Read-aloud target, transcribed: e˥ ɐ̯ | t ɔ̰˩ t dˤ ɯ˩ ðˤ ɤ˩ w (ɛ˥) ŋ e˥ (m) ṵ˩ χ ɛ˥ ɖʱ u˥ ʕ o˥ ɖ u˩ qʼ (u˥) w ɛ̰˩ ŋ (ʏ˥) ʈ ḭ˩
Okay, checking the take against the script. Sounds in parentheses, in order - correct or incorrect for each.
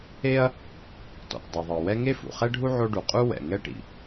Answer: correct, incorrect: f, correct, incorrect: ɛ˥

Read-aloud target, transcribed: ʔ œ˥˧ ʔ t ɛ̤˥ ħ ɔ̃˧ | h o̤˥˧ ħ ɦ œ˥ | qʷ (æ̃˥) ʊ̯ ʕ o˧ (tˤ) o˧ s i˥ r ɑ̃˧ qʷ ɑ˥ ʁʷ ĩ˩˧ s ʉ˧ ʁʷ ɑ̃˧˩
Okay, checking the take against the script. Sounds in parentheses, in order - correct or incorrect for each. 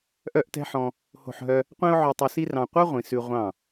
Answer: correct, correct

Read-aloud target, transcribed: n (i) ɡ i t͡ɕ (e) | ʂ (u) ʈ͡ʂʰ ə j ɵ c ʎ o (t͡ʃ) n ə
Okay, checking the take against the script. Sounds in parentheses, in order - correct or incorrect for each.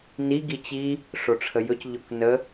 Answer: correct, incorrect: i, incorrect: o, incorrect: k

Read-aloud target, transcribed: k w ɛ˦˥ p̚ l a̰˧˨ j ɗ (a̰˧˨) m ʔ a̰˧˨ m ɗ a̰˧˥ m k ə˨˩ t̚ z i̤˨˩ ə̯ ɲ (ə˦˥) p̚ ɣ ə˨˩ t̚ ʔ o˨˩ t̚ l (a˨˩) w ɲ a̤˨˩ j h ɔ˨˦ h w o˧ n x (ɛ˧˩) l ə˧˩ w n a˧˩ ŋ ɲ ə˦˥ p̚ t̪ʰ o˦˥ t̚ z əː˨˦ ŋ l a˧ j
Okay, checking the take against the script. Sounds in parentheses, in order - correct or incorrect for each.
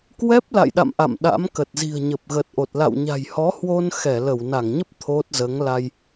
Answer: correct, incorrect: ə˨˩, incorrect: a̰˧˨, correct

